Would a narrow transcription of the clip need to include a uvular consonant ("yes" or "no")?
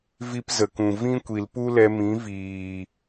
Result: no